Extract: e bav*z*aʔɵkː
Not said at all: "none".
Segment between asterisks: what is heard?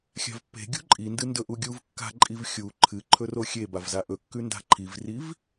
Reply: z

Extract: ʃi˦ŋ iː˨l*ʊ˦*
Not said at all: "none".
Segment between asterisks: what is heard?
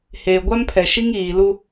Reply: u˦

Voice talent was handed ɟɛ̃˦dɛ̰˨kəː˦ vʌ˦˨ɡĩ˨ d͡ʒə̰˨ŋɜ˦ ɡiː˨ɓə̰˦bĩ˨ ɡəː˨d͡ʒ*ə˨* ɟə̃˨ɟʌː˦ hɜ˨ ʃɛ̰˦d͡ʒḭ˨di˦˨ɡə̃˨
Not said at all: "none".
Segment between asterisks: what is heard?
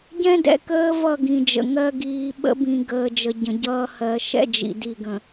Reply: ə˨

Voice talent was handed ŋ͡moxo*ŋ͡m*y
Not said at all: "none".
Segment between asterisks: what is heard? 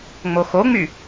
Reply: ŋ͡m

